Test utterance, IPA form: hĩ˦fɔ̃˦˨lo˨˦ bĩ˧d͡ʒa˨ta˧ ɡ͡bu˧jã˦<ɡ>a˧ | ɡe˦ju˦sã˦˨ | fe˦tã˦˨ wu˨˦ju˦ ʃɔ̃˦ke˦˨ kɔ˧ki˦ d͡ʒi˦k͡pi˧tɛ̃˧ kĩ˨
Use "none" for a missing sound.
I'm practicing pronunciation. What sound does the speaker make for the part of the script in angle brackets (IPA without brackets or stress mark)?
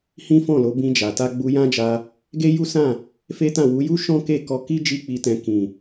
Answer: d͡ʒ